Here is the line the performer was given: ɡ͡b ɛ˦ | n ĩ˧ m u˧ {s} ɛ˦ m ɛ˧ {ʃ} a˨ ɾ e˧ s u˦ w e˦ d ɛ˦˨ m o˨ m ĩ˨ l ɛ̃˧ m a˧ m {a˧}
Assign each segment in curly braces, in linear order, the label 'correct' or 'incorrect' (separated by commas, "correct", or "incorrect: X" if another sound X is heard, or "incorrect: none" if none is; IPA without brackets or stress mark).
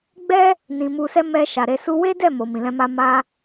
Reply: correct, correct, correct